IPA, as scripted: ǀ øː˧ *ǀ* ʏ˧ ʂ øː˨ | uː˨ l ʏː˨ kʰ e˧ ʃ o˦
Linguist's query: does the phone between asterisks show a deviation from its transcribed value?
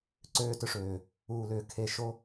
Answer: yes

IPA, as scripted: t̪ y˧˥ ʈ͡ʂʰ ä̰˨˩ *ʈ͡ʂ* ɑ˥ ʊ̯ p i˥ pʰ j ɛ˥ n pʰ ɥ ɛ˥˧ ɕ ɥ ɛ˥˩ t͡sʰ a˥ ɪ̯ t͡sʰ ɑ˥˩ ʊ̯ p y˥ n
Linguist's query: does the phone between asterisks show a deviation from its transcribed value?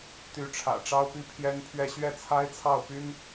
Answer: no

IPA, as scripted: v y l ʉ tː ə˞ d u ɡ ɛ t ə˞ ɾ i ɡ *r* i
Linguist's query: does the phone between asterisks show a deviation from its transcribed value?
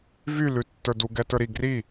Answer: no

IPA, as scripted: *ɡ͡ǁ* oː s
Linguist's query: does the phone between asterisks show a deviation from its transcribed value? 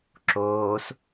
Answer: yes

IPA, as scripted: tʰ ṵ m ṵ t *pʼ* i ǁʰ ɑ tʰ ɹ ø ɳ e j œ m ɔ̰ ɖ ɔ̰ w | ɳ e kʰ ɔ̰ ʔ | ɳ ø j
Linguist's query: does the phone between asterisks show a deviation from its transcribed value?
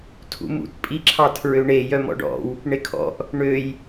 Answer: no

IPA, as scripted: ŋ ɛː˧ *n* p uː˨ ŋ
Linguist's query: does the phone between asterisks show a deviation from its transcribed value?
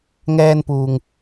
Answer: no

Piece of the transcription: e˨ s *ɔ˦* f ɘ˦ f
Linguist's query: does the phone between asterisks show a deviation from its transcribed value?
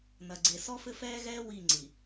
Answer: no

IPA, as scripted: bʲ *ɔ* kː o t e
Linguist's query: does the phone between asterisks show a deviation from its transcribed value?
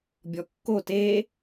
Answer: no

